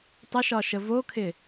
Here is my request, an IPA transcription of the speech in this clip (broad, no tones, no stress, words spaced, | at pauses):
tˤəʃɒʃə vokʰɪ